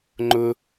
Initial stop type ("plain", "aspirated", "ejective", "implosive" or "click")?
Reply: click